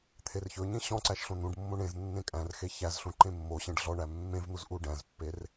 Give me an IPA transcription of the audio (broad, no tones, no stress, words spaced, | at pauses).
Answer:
t̪ʰerçɵɲẽ ɕɔ̃ ǀæʃɬõn̪ũɖmːõɳ ẽz nːẽkʼæ̃rxe çæzɬũ ǃẽmːoɕẽɖ ɮɔɳæ mːẽvn̪uz ʔuɖæ̃zpːer